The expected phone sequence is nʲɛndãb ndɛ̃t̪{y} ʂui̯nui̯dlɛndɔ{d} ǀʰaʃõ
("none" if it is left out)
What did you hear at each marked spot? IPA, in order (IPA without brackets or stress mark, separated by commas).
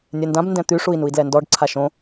y, ɖ